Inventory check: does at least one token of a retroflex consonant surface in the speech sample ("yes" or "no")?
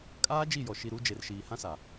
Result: no